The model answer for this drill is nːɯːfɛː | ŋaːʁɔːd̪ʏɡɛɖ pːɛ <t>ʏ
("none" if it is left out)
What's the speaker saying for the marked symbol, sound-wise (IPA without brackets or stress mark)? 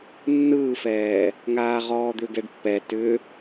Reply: t